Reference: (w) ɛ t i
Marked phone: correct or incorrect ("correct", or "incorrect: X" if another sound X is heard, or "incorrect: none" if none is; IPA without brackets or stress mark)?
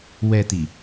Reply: correct